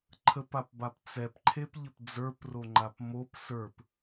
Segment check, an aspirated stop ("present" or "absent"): present